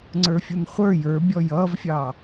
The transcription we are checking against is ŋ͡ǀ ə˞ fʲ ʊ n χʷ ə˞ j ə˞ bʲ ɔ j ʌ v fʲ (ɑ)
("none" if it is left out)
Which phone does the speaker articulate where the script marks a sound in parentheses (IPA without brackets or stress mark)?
ɑ